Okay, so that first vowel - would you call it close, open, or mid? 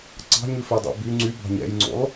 open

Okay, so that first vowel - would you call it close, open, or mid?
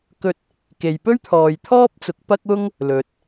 mid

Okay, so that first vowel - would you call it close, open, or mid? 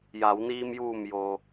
open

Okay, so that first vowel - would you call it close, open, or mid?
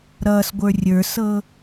mid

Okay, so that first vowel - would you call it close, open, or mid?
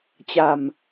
open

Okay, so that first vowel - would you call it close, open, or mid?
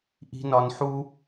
close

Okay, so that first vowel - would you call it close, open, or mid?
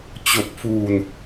mid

